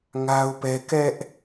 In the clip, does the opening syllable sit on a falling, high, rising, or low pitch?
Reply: high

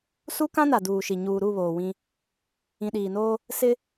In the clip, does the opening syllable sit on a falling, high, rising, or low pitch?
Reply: high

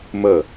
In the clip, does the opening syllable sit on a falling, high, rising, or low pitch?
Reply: falling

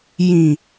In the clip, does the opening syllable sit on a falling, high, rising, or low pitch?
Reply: low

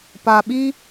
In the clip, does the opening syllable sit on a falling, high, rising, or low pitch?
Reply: low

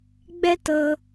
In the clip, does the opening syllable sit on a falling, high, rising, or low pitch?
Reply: high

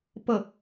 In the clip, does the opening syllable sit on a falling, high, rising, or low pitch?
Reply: falling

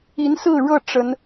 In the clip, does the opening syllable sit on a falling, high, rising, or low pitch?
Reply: rising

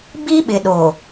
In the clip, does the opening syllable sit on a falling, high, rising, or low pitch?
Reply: high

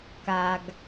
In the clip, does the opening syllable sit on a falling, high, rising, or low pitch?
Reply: low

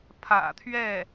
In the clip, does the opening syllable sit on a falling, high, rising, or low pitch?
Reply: low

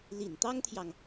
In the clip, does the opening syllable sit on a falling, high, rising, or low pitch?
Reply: low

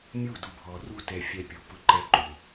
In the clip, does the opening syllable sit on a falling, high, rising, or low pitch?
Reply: falling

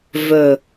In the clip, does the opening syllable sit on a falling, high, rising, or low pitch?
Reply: low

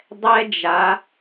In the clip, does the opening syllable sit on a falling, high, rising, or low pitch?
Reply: high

